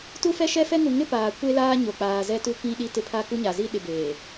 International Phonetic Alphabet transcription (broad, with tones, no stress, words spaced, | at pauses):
tu˦fɛ˦ʃɛ˦fɛ˦ ŋu˨ŋɪ˦ paː˨ kʷe˦laː˦ ɲo˨k͡paː˨zɛ˦tu˦ kĩ˦ ɗi˦tɪ˦ pʰa˦ku˦ɲa˨ zi˦ɗɪ˨ beː˨